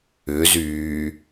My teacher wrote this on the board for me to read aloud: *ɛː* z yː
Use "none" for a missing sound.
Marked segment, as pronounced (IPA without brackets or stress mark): ʏː